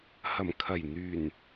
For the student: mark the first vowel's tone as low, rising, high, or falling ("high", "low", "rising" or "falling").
low